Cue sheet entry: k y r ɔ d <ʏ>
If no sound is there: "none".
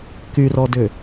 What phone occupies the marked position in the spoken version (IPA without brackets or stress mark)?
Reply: ʏ